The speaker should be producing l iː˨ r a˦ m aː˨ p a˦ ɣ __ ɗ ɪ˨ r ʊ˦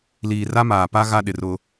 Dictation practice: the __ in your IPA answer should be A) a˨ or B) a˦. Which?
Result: B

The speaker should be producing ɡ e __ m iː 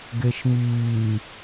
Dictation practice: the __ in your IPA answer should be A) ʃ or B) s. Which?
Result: A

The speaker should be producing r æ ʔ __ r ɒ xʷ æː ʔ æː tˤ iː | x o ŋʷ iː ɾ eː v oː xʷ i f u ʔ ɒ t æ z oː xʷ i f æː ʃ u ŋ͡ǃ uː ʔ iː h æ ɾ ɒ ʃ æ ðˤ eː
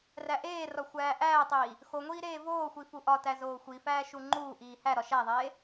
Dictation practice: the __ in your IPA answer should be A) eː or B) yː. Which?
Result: A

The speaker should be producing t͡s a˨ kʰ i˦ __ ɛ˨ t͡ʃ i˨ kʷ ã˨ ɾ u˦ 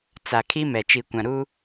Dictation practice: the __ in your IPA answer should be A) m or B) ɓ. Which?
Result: A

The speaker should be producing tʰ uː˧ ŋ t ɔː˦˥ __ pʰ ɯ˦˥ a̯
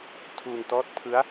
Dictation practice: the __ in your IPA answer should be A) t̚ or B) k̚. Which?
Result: A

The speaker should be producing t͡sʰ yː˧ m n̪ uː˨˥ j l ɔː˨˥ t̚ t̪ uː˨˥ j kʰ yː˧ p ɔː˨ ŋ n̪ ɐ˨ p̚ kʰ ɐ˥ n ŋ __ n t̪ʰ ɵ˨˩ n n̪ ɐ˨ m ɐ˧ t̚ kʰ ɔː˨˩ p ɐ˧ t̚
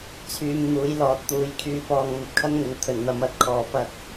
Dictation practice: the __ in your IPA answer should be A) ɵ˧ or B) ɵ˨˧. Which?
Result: B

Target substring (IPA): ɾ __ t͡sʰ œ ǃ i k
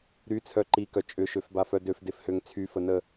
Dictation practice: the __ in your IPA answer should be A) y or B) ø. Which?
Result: A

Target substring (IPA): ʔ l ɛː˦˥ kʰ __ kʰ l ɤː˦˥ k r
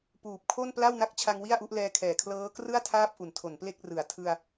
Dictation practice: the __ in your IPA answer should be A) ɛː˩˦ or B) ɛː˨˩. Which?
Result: B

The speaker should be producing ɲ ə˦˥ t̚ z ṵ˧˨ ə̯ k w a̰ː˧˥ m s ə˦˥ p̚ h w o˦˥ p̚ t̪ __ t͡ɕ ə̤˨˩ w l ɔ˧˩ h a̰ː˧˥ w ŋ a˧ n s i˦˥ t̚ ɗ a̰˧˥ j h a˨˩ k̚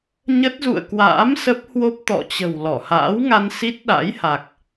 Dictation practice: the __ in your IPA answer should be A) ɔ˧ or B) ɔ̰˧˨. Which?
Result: B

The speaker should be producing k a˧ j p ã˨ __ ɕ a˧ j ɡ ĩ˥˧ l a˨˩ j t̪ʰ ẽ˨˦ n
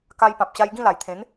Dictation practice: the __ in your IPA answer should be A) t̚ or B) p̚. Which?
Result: B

